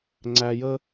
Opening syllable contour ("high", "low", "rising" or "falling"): low